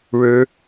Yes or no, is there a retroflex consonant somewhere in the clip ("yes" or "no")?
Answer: yes